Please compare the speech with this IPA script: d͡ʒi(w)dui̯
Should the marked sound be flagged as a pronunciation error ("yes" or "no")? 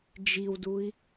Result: no